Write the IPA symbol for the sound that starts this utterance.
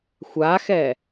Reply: xʷ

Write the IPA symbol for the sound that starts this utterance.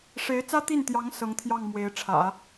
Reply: ʂ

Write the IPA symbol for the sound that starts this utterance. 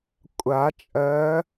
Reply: kʷʼ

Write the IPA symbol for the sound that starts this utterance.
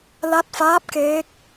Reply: l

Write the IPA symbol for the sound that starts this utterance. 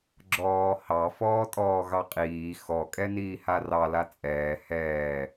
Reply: ɡ͡ǁ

